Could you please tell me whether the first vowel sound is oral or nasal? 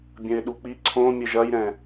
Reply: nasal